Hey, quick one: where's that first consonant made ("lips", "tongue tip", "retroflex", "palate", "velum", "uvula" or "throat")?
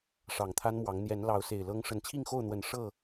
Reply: retroflex